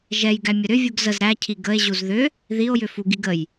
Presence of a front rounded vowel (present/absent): present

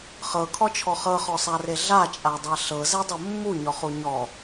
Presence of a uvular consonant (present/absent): present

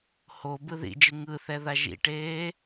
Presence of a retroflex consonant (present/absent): present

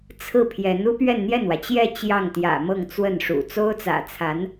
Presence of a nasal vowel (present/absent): absent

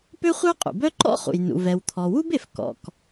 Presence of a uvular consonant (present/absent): present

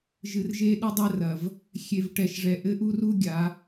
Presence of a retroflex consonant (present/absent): present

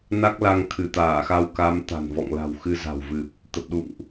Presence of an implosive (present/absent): present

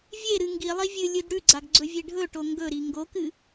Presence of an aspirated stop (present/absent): absent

